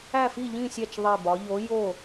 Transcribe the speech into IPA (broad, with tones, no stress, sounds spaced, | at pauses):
æ˦˨ f i˦˨ ʎ ĩ˦˨ sʲ æ˦˨ t͡ʃ ðˤ i˦˨ b ɒ˧˥ ʎ o˧˥ j o˦˨